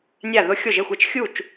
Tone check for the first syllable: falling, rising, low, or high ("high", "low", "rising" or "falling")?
falling